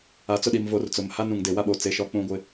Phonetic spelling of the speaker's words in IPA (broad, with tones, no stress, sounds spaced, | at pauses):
a˨ t͡s ʊ˦˨ ɗ i˨ m v o˨˦ r t͡s ʊ˨ m h a˦ n ũ˨ ŋ d e˨ w a˦ ɓ o˨ t͡s e˨˦ ʃ ɔ˦ k͡p ũ˦ ɡʷ ɪ˦